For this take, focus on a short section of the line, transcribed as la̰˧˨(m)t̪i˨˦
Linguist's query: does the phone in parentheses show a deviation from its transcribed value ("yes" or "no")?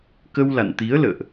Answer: yes